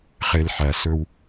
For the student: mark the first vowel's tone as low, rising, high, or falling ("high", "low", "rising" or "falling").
low